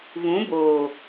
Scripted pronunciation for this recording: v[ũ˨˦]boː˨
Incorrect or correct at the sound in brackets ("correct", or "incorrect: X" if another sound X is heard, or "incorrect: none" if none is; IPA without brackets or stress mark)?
correct